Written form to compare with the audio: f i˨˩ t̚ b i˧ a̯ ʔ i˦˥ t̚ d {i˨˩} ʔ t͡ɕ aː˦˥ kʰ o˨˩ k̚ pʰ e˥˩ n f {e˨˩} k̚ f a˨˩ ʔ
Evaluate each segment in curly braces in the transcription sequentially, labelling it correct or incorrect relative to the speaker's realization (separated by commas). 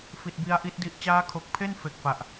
incorrect, correct